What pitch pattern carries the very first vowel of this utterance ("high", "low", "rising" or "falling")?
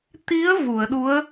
rising